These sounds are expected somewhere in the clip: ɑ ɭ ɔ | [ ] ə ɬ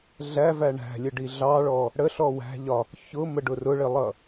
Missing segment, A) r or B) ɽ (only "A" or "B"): B